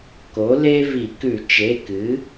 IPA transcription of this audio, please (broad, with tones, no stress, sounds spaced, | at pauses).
k o˩˥ l e˥ v i˧˩˧ k ʉ˧˩˧ t͡ʃ e˩˧˩ k ɨ˩˥